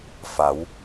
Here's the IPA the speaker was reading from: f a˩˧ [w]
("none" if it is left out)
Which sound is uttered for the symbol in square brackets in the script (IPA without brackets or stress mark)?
w